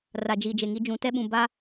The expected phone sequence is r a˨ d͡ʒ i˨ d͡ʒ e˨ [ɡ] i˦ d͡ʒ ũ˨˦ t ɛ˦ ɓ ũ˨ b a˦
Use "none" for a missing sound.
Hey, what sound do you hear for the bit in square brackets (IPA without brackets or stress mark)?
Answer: ŋ